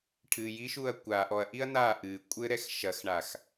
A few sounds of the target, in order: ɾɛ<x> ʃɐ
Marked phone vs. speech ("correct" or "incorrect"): correct